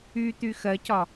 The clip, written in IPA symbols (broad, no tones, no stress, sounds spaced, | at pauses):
y t̪ y x ɜ c ɒ